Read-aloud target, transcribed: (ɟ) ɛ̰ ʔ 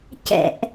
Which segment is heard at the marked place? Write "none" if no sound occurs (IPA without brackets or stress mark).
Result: c